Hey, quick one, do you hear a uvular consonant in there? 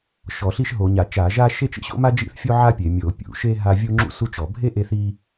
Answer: no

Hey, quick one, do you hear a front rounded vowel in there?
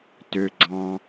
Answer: yes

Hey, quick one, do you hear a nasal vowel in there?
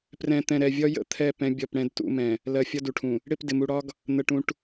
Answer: yes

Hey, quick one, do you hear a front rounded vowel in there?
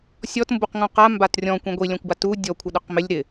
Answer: no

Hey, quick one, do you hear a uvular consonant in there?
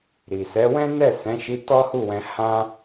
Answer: no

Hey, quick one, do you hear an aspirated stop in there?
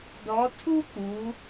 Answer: yes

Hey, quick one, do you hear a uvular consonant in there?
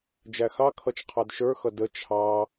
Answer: yes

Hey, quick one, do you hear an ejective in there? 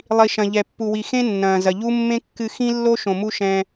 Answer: no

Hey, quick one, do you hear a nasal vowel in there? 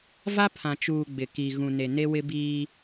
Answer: yes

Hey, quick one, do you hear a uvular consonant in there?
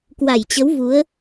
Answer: no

